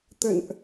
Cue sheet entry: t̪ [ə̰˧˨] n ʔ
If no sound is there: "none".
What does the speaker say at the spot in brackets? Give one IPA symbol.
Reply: ə̰˧˨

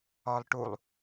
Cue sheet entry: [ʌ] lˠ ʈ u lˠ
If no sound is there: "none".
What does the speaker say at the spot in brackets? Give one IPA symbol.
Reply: ɒ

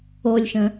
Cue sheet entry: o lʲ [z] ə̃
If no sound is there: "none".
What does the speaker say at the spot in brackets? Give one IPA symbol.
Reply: ʃ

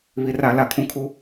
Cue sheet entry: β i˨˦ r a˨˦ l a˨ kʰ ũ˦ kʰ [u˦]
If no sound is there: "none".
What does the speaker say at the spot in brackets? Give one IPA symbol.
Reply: u˦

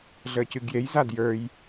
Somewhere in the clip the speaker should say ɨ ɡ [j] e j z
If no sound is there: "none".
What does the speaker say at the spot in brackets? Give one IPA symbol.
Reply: j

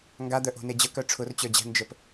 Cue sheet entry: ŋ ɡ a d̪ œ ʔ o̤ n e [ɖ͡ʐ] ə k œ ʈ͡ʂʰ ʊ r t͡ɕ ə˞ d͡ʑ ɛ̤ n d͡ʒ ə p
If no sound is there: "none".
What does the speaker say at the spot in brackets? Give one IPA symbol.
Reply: d͡ʑ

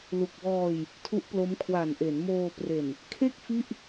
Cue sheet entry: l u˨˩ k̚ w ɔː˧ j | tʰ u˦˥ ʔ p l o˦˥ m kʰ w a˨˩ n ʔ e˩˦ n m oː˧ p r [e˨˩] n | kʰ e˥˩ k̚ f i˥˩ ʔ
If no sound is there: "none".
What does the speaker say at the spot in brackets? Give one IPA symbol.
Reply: e˨˩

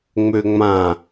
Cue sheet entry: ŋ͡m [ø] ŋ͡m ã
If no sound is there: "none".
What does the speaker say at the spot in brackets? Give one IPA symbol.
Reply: ø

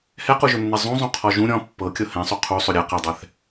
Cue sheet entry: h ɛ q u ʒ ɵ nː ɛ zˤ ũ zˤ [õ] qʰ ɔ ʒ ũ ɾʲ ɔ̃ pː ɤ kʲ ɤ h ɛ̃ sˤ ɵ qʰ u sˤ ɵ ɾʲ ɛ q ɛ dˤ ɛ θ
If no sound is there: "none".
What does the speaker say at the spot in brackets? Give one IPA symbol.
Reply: ũ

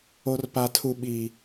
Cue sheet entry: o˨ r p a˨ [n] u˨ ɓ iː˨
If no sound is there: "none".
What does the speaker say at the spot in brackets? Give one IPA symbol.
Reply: tʰ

